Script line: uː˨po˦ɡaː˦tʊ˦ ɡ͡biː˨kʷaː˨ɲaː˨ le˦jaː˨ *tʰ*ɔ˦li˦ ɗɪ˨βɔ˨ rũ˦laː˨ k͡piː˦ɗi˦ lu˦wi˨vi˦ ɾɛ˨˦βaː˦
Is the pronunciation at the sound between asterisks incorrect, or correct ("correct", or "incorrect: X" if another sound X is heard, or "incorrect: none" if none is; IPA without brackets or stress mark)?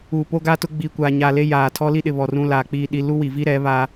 correct